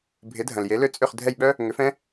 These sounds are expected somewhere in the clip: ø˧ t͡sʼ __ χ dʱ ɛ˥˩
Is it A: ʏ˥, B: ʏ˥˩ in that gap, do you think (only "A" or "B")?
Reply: B